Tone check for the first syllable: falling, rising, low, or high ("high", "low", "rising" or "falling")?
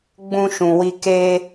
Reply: high